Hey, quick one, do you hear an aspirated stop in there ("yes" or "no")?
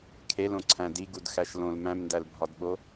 yes